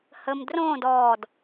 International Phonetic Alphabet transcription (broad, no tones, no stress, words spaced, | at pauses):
həm drõːd ɔːd